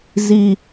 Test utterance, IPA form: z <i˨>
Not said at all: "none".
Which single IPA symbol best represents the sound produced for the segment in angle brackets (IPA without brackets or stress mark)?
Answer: i˨